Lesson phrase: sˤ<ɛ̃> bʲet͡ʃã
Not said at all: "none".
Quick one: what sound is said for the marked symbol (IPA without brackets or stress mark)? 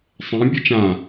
ɛ̃